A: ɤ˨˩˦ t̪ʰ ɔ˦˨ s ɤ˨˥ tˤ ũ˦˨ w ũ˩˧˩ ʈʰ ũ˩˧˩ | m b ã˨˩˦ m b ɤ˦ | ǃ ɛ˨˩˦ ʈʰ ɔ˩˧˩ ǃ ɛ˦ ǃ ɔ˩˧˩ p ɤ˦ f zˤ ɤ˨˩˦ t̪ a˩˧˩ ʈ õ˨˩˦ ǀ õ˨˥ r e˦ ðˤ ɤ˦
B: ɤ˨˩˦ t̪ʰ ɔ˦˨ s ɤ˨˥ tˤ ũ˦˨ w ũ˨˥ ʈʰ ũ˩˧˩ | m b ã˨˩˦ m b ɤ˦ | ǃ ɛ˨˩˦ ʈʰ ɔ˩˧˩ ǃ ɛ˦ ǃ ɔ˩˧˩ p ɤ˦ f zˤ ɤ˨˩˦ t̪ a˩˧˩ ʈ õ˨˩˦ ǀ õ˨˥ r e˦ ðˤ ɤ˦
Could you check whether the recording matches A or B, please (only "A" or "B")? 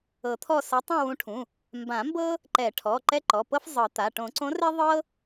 B